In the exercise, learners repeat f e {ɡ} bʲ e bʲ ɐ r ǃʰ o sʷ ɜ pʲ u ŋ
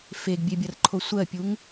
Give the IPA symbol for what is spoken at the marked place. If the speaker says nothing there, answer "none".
ɡ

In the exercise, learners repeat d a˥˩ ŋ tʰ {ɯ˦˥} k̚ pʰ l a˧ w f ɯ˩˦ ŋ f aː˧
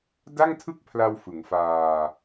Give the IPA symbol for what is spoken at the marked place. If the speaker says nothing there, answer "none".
ɯ˥˩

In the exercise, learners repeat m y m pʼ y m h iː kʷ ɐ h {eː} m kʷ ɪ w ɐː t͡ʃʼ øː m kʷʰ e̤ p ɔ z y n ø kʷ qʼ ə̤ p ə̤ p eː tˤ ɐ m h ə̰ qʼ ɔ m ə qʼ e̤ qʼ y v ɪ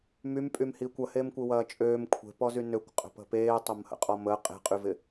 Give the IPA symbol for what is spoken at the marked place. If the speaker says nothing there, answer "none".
e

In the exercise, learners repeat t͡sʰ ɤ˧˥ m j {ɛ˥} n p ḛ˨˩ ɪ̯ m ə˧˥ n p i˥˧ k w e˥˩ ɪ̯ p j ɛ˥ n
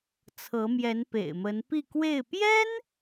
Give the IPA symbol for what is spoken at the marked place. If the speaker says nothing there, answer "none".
ɛ˧˥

